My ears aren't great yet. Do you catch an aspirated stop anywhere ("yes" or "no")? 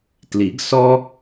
no